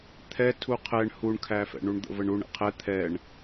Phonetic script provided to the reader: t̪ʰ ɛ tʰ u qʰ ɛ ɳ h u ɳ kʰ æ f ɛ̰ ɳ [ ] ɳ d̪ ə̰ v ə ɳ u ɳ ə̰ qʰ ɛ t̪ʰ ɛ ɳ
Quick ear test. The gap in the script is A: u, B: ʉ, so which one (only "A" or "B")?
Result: A